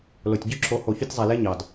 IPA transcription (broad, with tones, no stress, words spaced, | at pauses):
lo˨tʲɟy˦˨ǁʰo˨˦ ho˨çy˧tʲzˤæ˨ le˦ɲɑ˨d